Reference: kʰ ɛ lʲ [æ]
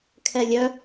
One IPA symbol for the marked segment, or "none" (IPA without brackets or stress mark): œ